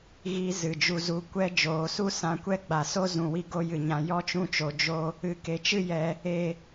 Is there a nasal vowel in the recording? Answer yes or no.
yes